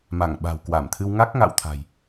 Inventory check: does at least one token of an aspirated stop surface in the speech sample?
yes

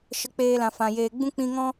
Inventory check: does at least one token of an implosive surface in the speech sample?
no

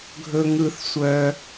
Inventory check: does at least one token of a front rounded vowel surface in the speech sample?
yes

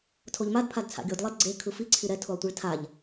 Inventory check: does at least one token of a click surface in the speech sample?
yes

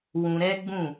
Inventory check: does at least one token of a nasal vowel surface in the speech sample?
yes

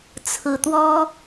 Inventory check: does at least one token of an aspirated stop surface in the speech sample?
yes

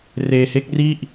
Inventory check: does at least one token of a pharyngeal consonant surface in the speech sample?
no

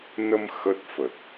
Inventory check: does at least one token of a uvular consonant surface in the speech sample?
no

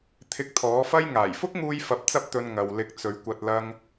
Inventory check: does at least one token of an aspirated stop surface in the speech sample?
yes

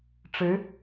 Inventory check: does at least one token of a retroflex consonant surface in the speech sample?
yes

